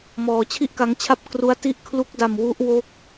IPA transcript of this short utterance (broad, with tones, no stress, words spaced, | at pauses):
mɔː˧ t͡ɕʰi˥˩ʔka˦˥ŋt͡ɕʰa˥˩p̚ kru˥˩a̯ ti˥˩ʔkʰlu˦˥k̚da˧m wu˦˥ʔwo˦˥k̚